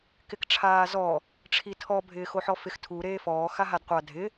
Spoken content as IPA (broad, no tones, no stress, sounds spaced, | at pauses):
k ɪ k ʈ͡ʂʰ aː z ɔ | ʈ͡ʂʰ i tʰ ɔ bʱ ɪː x o ħ ɔ f ɪ x tʰ u ɾ eː f ɔː x a ɦ a d qʷ a dʱ ɪ